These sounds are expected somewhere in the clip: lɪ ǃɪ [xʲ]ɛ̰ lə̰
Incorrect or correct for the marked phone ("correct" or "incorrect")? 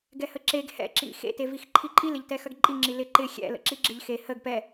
correct